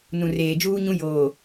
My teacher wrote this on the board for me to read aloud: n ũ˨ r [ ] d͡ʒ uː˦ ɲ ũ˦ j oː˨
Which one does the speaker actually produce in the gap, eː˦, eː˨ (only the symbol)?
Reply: eː˨